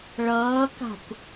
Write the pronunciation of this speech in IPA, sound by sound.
ɭ ʌː k a̤ kʷ

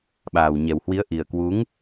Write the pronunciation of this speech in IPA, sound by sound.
ɓ aː˨˩ w ɲ ɛ˨˩ w h w i˨˦ ə̯ ʔ i˨˩ ə̯ k w u˨˦ ŋ

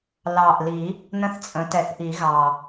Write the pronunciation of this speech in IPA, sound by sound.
l ɑ˨˩ ʔ l i˨˩˦ | n ə̃˥ θ t͡sʼ ə̃˩˥ t ɛ˨˩˦ θ ʔ i˨˩˦ ɣ ɑ˨˩

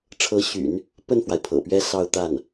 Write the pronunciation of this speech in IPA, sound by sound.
ʈ͡ʂʰ ɤ˧˥ ɕ y̰˨˩˦ n | p ə˥˩ n f w a˩ ɪ̯ pʰ ɤ̰˨˩ p ɥ ɛ˥ s ɑ˥˧ ʊ̯ t̪ a˥˩ n

